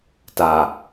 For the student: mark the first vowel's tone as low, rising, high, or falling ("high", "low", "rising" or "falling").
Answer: low